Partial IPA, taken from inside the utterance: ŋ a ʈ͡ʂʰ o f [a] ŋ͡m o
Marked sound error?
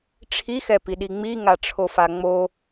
no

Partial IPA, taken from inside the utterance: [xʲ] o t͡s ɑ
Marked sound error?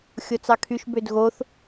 no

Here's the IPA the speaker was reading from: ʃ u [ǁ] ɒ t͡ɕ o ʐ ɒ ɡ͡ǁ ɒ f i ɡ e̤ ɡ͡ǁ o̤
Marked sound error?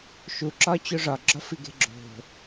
no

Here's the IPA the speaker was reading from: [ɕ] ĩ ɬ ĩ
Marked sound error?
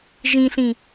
yes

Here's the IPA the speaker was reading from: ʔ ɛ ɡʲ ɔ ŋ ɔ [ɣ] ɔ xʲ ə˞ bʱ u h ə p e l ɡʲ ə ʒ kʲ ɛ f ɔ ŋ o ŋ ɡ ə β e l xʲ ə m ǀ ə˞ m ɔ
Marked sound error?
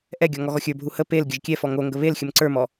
no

